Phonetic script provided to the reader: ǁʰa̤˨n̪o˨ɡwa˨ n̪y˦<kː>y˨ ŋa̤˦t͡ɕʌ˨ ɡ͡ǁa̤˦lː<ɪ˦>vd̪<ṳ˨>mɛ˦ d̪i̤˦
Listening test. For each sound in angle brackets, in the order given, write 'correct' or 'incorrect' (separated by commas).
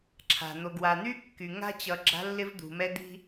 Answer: correct, correct, correct